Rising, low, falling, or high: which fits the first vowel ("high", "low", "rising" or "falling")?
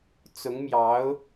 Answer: rising